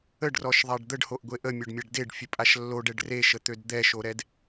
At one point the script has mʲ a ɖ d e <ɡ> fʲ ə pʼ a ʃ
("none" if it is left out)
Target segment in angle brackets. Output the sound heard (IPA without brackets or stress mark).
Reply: ɖ